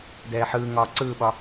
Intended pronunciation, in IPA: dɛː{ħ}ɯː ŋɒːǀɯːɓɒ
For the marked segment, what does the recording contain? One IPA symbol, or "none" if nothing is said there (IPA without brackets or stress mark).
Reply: ħ